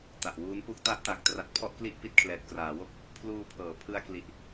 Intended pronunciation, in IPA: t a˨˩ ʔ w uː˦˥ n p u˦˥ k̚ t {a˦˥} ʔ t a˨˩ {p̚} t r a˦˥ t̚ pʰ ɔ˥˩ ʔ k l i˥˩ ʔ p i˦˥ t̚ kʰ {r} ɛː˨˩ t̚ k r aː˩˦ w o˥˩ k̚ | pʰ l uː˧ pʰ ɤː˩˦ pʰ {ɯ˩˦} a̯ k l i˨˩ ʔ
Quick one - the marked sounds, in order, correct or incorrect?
correct, incorrect: k̚, incorrect: l, incorrect: ɯ˧

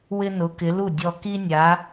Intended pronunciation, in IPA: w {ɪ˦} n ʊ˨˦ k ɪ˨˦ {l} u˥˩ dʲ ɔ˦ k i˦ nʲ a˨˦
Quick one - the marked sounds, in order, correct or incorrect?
correct, correct

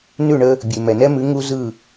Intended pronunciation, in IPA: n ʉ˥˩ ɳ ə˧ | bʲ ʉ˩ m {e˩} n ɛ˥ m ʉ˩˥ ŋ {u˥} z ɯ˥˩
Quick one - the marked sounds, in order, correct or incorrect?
incorrect: ɛ˩, correct

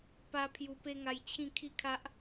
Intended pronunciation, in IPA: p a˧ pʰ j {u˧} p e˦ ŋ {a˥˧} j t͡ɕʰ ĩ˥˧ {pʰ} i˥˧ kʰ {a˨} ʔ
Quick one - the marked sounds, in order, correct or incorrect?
correct, incorrect: a˧, incorrect: kʰ, incorrect: a˦

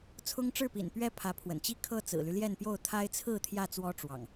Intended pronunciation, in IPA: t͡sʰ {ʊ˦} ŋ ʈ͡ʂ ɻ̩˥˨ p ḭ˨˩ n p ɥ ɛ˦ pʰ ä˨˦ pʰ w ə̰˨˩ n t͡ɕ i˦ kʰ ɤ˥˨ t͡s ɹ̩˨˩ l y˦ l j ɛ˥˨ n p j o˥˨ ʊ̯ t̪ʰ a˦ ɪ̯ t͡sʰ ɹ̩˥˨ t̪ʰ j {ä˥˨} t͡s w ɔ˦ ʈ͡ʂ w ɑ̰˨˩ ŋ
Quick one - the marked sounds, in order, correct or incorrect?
correct, correct

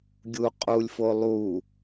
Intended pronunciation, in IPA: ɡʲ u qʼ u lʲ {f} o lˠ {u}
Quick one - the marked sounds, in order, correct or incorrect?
correct, correct

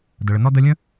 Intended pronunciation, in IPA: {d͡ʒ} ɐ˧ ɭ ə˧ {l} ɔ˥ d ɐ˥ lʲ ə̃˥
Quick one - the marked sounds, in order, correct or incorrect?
incorrect: d, incorrect: n

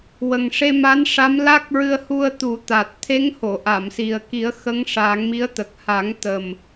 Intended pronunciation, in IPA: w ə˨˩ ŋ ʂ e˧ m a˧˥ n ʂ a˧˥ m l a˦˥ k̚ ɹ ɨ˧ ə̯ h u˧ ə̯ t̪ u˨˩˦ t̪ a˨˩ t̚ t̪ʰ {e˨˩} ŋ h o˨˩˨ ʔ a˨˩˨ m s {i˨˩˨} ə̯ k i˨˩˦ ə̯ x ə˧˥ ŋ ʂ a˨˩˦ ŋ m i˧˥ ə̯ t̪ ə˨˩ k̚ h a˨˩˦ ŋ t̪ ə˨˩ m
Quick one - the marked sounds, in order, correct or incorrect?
incorrect: e˧˥, incorrect: i˨˩

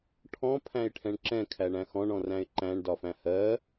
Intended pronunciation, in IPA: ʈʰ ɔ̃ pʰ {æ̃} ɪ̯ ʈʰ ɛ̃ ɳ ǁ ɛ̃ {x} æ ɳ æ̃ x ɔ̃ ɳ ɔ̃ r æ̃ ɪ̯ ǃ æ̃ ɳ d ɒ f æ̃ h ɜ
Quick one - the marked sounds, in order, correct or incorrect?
correct, incorrect: kʰ

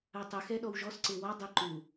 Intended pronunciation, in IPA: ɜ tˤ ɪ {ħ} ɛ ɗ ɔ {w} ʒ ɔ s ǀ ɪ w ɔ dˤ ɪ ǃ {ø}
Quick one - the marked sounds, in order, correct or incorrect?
incorrect: x, correct, incorrect: u

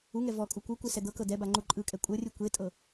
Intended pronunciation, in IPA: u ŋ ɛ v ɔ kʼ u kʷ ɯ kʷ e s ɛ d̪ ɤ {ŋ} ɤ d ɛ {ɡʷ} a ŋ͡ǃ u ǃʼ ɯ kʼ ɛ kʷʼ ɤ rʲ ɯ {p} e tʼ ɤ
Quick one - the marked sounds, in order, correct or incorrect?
incorrect: k, incorrect: b, incorrect: kʷ

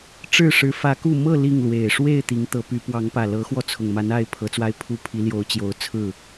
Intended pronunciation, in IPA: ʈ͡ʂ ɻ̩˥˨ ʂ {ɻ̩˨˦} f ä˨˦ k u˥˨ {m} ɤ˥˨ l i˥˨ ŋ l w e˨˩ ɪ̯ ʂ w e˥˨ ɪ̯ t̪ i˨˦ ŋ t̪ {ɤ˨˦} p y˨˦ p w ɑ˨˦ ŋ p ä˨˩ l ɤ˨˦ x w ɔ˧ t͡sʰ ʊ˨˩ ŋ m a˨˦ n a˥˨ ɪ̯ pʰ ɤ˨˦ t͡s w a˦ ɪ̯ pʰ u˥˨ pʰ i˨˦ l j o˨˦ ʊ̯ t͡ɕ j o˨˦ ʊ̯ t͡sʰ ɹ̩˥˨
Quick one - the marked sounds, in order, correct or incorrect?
correct, correct, correct

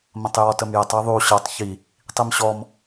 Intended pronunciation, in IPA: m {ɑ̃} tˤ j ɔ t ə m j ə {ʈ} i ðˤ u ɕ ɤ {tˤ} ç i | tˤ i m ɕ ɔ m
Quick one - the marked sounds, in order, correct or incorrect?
incorrect: ə̃, incorrect: tˤ, correct

